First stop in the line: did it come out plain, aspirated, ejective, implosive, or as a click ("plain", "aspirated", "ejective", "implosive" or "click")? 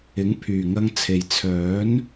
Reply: aspirated